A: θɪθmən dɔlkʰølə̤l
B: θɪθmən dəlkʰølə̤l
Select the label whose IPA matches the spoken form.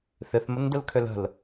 B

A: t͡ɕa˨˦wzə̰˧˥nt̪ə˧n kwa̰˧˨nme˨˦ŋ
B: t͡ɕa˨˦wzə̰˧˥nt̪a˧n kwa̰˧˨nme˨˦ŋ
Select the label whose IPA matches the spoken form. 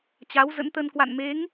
A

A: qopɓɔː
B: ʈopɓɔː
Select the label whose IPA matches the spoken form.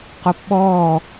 A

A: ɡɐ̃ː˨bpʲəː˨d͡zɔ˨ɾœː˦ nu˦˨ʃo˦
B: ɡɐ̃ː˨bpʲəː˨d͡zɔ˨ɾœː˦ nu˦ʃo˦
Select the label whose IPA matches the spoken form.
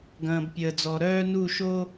A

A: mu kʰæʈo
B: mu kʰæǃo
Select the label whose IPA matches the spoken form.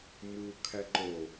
B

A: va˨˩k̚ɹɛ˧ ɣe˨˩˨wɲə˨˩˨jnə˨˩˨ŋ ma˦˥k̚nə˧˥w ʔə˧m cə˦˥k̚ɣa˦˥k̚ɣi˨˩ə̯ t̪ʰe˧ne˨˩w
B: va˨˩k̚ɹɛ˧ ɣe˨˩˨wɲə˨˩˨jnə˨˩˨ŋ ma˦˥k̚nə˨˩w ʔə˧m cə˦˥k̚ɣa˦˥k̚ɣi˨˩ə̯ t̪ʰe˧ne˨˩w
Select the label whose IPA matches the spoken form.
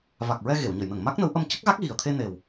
A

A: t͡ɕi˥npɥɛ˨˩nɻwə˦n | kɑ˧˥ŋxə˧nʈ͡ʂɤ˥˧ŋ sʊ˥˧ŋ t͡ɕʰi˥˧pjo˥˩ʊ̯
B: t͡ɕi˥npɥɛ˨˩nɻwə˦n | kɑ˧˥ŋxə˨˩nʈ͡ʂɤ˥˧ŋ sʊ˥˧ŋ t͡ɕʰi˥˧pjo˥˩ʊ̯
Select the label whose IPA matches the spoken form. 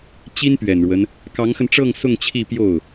A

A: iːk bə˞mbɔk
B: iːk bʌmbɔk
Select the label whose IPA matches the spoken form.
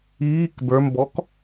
A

